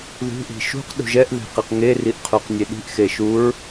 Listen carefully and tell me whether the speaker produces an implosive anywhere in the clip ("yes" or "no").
yes